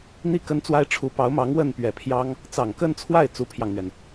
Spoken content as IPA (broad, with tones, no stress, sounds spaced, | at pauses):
n̪ i˥˩ k ə˥ n t͡s w a˥ ɪ̯ ʈ͡ʂʰ u˧˥ p ɑ˧˥ ʊ̯ m ɑ˧˥ ŋ w ə˥˩ n p ɥ ɛ˨˩ pʰ j ɑ˥ ŋ | t͡s ɑ˨˩ ŋ k ə˥˧ n t͡sʰ w a˥˩ ɪ̯ t͡s u˥ pʰ j ɑ˨ ŋ n̪ ɥ ɛ˩ n